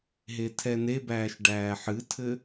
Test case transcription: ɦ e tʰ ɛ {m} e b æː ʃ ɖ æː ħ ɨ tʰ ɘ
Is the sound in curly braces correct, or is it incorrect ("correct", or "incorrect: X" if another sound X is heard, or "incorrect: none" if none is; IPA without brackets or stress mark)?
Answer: incorrect: n